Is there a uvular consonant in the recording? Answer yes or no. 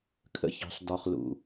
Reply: yes